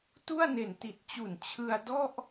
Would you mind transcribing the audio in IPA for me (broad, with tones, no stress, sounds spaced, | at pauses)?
t u˥˩ a̯ n e˨˩ n t i˨˩ t̚ t͡ɕ u˨˩ n t͡ɕʰ ɯ˧ a̯ d ɔ˥˩ ʔ